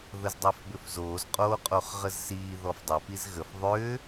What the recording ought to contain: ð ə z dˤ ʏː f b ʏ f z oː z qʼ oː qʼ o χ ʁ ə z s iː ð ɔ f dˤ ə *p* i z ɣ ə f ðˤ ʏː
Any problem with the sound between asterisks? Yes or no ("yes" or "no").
no